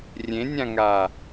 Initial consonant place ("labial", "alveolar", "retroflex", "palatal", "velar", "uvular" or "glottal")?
alveolar